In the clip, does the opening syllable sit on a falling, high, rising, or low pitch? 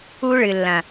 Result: high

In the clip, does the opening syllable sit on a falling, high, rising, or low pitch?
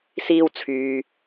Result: high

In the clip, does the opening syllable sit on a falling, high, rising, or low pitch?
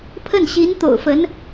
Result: falling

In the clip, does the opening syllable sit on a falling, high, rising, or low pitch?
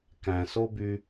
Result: low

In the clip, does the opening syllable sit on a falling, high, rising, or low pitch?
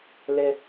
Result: low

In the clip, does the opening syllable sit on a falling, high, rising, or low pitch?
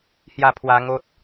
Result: falling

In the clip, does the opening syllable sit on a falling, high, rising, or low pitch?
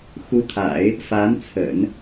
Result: rising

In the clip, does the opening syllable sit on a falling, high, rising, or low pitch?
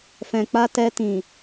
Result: low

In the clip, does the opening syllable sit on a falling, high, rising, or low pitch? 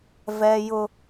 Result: high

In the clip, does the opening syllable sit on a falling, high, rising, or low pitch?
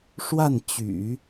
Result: falling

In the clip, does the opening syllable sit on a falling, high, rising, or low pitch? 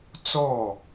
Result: falling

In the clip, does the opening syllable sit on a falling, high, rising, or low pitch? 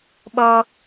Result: low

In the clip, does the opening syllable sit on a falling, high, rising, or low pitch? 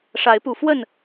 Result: rising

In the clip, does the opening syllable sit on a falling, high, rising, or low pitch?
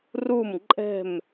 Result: falling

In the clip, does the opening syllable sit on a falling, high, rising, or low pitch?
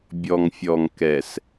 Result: low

